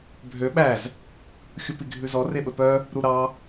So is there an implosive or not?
yes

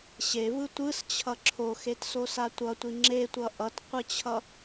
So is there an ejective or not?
no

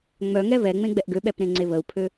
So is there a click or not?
yes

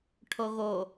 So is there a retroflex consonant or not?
yes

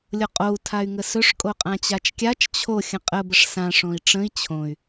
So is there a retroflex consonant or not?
yes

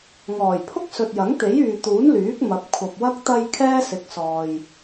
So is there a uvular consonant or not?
no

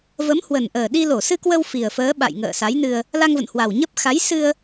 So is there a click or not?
no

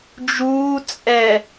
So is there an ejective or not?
yes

